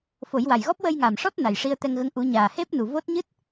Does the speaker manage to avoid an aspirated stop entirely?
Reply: yes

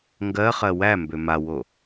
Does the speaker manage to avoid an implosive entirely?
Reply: yes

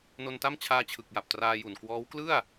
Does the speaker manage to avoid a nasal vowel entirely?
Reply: yes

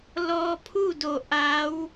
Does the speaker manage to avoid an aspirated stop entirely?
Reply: no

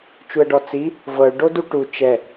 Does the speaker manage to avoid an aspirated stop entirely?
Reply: yes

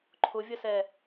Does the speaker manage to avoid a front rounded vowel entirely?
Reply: yes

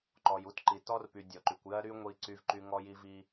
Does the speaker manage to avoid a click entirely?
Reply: no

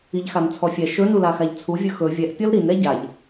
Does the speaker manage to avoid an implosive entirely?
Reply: yes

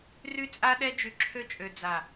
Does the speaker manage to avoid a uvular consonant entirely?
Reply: yes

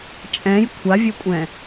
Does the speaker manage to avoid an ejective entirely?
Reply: no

